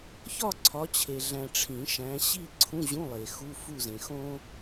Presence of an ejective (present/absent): absent